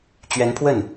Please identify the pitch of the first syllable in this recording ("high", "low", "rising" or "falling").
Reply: rising